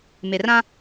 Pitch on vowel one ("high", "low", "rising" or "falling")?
low